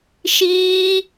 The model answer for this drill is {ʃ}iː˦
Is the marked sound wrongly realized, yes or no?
no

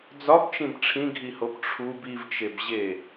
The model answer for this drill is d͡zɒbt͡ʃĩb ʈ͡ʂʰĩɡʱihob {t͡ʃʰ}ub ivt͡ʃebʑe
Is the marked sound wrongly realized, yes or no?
yes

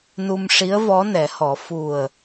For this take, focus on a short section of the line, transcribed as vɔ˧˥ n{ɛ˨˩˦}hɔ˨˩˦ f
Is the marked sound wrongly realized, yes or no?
no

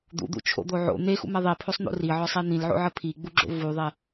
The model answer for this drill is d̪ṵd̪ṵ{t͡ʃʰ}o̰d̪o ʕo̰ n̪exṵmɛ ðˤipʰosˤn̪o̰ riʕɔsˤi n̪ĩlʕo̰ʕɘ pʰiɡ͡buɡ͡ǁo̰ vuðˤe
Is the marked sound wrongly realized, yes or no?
no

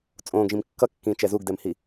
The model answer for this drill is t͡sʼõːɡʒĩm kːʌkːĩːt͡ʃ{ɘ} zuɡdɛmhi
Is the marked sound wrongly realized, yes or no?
yes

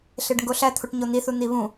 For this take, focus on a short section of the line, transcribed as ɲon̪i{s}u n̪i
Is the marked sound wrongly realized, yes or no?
yes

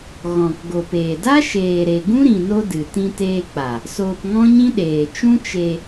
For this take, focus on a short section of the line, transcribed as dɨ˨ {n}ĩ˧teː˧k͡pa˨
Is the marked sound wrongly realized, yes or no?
yes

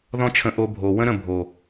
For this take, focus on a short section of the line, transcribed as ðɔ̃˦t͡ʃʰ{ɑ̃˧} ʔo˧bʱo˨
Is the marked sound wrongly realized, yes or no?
yes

